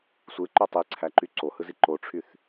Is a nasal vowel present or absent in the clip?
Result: absent